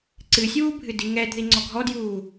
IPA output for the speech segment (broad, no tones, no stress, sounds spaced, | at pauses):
ǀ ɨ sʲ uː bʱ ɨ d i ŋ ɛ d ð i ŋ͡ǀ ɔ ɡʱ ɔ d j uː